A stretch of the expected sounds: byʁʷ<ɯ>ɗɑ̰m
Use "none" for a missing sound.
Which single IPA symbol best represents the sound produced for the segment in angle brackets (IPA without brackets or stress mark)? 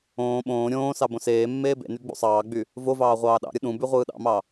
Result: ɯː